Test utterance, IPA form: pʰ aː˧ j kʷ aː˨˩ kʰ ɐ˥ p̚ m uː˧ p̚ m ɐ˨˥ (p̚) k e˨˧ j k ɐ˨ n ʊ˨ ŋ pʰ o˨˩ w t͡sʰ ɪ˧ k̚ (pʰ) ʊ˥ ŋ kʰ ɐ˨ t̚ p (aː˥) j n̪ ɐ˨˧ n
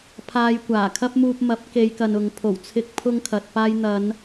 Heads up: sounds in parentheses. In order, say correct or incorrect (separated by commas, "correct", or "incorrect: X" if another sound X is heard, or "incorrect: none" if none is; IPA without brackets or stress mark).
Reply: correct, correct, incorrect: aː˧